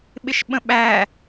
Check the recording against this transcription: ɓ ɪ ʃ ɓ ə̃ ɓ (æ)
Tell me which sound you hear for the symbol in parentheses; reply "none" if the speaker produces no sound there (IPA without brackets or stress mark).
æ